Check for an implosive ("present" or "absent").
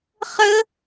absent